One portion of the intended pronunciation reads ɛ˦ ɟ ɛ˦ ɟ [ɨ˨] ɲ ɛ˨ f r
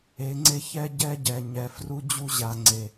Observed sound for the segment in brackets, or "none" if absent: ɛ˨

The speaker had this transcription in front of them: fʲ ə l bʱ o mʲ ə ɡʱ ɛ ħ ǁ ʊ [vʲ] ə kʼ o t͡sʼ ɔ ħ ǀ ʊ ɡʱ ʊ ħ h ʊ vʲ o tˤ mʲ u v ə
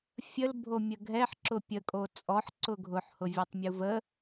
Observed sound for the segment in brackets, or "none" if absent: pʲ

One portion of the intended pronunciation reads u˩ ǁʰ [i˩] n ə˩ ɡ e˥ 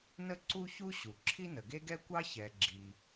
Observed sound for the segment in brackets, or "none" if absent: i˥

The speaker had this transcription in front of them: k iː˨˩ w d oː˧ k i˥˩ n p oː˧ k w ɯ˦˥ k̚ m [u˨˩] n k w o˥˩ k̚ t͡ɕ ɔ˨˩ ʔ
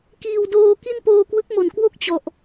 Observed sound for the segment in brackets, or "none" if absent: o˨˩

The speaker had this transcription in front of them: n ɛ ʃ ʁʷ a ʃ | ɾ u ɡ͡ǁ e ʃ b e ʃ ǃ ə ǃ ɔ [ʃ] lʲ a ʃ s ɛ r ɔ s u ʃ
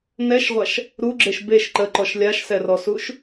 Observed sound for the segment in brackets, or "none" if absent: ʃ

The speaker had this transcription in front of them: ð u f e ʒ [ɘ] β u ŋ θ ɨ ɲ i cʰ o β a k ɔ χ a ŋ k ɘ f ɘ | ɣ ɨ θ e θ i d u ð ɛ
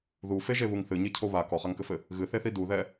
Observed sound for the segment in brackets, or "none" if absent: e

